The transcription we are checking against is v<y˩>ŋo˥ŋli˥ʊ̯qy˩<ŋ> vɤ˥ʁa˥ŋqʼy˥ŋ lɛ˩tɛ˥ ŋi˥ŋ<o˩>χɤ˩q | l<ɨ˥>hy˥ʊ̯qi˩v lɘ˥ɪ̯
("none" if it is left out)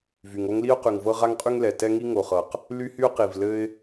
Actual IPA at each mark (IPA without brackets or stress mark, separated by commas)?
y˩, ŋ, o˩, y˥